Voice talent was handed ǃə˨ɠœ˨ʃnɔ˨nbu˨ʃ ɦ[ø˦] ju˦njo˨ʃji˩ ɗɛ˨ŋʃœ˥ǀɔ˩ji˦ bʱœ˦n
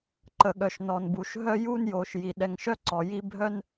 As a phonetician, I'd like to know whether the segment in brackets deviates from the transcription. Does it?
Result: yes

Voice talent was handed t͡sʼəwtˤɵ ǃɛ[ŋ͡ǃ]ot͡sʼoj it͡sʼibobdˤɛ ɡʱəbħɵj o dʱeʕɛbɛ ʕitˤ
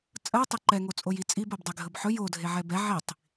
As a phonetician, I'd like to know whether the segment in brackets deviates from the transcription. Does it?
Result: yes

